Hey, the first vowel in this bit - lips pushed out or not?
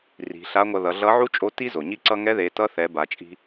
no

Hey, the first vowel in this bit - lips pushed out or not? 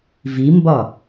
no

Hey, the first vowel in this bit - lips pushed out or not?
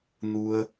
yes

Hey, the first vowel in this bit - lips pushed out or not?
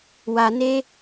no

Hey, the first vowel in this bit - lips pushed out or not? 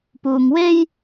yes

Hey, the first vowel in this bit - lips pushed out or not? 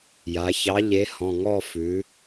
no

